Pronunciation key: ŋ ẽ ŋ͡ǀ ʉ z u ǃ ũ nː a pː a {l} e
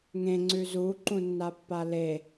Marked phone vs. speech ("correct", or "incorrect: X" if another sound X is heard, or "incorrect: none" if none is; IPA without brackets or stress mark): correct